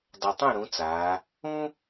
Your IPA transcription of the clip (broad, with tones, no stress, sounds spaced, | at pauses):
dˤ ʌ˨˩ tˤ ũ˥˩ ɾ ũ˩˥ t͡s aː˩˧ | ũ˥